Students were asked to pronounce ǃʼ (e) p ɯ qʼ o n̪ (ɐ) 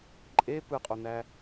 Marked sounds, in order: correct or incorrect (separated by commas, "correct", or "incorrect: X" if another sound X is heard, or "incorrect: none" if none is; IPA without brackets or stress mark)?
correct, incorrect: æ